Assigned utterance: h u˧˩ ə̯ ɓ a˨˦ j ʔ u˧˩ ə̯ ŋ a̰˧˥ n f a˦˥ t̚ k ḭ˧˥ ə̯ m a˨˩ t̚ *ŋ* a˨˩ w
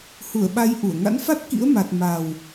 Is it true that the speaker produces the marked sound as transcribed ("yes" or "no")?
no